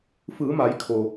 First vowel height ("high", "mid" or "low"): high